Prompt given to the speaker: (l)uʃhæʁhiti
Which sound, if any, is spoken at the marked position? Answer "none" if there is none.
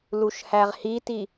l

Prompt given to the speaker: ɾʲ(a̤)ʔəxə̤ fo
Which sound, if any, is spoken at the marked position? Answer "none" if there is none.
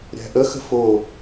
æ̤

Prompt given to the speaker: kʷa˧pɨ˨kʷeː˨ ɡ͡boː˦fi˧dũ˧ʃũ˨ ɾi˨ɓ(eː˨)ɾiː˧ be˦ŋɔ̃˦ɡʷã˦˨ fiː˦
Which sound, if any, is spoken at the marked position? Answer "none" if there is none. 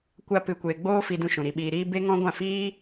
iː˨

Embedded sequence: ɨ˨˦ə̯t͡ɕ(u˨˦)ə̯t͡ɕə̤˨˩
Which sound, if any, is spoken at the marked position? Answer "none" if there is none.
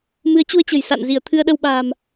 u˧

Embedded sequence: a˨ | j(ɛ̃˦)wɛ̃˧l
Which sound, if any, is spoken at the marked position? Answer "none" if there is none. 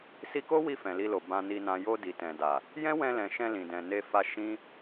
ɛ̃˦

